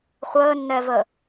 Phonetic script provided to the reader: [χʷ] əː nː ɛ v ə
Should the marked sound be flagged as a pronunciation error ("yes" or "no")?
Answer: no